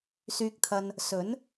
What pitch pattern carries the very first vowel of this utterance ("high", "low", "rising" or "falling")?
low